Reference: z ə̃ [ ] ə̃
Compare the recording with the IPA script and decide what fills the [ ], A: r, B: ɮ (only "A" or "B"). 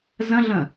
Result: B